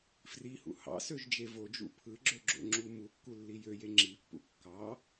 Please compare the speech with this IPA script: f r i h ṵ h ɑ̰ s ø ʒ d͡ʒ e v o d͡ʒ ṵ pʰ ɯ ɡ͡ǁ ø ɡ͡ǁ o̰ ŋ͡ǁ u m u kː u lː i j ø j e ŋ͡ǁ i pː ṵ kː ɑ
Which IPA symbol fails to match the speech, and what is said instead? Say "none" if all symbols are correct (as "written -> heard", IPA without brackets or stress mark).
none